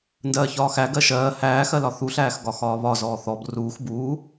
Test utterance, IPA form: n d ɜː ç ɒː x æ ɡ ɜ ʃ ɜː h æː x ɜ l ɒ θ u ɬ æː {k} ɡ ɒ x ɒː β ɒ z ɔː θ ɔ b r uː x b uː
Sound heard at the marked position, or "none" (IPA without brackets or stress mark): x